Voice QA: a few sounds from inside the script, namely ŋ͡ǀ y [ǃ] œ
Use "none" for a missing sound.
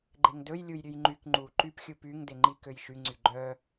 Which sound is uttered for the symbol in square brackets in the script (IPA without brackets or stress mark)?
ɡ͡ǃ